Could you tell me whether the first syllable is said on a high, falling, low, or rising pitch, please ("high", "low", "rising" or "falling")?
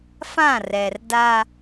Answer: falling